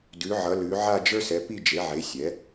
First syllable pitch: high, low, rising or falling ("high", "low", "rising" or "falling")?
rising